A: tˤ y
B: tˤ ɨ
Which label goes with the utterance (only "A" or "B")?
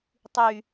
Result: A